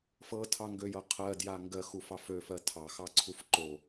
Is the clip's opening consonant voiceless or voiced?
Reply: voiceless